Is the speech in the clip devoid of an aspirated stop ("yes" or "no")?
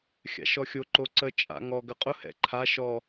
no